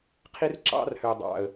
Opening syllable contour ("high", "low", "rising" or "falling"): high